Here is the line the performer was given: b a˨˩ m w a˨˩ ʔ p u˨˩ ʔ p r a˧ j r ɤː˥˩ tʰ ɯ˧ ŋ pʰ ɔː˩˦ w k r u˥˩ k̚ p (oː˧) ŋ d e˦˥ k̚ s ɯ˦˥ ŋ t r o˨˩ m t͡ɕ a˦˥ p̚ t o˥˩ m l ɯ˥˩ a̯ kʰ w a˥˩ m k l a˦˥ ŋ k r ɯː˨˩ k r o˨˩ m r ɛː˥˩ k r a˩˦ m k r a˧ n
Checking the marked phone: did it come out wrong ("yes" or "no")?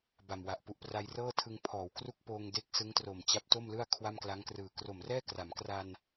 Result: no